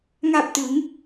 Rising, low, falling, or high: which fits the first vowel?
low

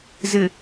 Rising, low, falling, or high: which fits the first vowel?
low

